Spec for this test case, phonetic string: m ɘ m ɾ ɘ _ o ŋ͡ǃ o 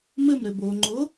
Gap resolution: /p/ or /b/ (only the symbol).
b